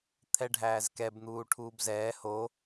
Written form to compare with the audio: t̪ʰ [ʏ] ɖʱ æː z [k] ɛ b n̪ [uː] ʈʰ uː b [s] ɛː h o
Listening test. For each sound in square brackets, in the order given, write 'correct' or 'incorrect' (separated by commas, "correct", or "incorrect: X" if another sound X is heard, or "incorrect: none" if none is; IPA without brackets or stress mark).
incorrect: ɛ, correct, correct, incorrect: z